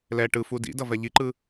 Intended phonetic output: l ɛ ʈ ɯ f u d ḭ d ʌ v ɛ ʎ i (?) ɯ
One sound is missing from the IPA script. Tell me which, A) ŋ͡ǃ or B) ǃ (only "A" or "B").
B